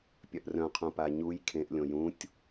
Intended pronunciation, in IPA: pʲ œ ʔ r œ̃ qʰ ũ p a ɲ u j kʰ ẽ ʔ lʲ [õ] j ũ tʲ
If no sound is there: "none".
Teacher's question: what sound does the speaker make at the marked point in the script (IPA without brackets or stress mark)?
õ